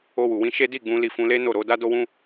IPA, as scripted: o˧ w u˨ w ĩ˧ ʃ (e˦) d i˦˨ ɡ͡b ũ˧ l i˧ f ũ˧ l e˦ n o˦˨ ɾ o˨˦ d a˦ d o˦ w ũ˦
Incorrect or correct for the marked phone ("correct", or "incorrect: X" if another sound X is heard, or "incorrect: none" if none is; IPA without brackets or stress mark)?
correct